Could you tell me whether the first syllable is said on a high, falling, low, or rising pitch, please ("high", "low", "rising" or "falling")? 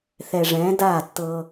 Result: low